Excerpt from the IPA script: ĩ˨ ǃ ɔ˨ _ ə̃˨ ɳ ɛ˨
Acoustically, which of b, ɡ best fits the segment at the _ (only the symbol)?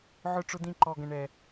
ɡ